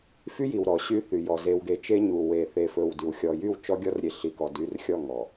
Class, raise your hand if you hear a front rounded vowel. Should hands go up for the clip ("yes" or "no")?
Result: yes